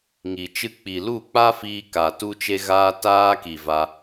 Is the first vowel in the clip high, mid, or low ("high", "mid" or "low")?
high